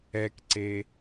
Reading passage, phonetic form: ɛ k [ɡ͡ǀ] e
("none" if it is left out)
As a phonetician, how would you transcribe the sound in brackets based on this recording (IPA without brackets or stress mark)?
ǀ